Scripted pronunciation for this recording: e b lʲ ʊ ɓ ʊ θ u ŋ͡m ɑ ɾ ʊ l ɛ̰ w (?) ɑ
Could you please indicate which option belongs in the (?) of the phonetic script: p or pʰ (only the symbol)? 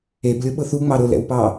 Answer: p